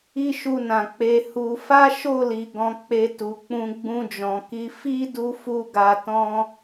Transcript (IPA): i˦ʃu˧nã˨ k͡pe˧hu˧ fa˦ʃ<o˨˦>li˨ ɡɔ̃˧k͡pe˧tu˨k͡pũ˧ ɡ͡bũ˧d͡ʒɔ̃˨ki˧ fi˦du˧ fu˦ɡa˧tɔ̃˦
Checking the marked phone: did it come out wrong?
yes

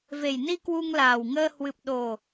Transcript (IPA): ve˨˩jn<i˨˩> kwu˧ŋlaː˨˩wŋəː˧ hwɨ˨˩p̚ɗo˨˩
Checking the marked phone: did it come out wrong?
yes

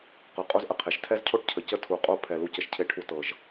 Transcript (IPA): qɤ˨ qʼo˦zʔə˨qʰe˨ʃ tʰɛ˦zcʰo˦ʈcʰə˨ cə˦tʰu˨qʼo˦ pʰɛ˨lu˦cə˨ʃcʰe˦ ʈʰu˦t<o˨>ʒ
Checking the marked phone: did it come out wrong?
yes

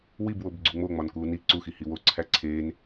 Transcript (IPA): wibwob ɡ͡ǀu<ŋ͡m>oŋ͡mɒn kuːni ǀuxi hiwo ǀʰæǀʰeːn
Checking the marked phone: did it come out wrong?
no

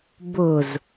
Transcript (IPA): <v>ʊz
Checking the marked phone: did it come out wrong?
yes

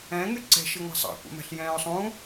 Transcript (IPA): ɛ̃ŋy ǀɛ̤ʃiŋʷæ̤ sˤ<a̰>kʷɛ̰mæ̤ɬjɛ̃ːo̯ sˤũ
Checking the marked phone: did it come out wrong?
yes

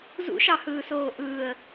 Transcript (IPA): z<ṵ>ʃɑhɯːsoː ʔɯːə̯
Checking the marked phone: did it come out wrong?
no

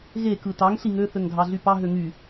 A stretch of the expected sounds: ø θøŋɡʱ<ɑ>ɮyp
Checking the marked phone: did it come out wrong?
no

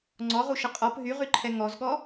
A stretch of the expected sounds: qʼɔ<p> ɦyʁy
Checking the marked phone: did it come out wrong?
no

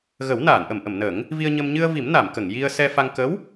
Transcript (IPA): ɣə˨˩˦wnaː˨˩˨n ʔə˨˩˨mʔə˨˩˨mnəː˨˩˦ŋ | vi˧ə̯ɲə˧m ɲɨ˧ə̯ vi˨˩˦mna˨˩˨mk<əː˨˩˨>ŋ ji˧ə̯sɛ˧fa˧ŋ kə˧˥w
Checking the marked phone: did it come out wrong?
yes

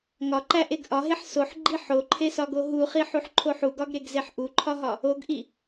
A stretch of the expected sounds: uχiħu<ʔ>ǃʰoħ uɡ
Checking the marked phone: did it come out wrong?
yes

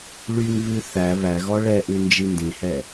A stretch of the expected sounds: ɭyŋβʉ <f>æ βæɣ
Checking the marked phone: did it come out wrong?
yes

